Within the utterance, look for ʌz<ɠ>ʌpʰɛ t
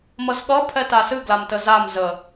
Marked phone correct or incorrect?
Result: correct